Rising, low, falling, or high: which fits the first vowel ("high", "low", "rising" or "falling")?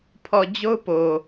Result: low